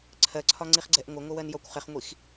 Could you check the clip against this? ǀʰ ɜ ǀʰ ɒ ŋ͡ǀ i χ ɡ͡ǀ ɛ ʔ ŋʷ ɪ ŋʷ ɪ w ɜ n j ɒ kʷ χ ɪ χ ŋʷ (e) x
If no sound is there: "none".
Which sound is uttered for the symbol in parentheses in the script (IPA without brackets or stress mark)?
i